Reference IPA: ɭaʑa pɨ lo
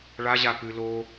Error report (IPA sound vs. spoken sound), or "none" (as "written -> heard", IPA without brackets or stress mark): none